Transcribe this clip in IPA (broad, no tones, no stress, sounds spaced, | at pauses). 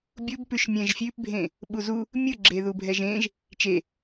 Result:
bʲ u b p ʉ ʃ mʲ ɛ̃ ʒ fʲ ʉ p bʱ ẽ | ɓ u z u | mʲ ɯ ɡ͡ǁ e ð u bʱ ɛ ʒ ẽ ʒ | t͡ʃ e